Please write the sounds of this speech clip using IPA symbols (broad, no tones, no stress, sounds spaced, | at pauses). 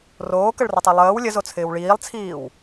r oː k ə ɭ r ə tˤ e lˠ əː w lʲ ə z o t͡sʰ ɪː w ɭ iː lˠ t͡sʰ iː w